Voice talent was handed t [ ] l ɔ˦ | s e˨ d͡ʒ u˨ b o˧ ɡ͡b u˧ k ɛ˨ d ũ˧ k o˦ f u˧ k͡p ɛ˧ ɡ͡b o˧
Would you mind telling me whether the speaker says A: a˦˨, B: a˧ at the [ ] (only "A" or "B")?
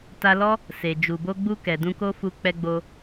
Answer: B